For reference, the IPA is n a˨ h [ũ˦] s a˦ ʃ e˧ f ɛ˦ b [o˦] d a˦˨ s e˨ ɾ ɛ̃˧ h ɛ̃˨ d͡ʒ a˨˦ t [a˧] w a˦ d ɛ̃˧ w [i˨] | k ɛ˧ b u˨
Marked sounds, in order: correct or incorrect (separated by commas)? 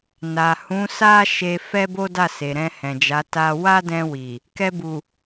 incorrect, correct, correct, correct